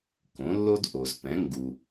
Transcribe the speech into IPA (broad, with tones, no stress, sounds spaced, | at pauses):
k õ˩˥ lː o˥ d ʔ o˩ z p ɛ̃˩˥ ŋ ɡ u˩